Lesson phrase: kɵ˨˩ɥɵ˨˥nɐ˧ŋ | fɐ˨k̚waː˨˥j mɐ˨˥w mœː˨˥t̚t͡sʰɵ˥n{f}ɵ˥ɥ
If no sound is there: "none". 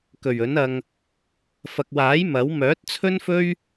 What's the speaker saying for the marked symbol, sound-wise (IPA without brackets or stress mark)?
f